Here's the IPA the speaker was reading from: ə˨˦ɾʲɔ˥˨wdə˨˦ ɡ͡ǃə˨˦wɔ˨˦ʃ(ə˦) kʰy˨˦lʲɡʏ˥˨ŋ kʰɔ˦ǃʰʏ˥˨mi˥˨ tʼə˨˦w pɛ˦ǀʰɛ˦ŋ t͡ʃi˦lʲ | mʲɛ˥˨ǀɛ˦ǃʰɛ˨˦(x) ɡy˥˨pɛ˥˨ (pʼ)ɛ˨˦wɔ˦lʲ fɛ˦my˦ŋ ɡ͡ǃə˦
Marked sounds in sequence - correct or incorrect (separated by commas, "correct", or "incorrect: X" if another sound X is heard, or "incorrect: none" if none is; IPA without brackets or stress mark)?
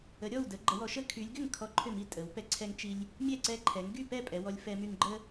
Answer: correct, incorrect: ŋ, correct